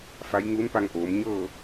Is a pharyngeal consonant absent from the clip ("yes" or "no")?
yes